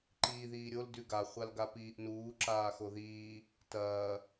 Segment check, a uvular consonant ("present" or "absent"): present